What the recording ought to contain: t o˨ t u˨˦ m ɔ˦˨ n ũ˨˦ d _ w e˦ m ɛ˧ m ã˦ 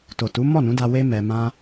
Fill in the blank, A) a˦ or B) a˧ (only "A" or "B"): B